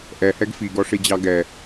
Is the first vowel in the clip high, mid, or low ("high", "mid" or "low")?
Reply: mid